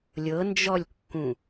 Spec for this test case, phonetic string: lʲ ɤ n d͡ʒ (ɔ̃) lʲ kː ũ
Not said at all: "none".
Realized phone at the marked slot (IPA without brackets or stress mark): ɔ